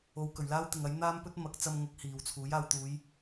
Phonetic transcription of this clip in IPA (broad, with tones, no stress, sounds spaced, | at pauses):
o˨˧ w k ɵ˨˩ ɥ l aː˥ w t̪ ɪ˨ ŋ ɐ˨˥ j n̪ aː˥ m p ɵ˥ t̚ m ɐ˨˥ k̚ t͡s ɐ˧ m ŋ ʊ˨˥ k̚ h iː˨ w t͡sʰ uː˨˥ j aː˨ w t̪ uː˨˧ j